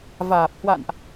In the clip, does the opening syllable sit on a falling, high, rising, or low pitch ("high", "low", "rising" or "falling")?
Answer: low